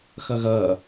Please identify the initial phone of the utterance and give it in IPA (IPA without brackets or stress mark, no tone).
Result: x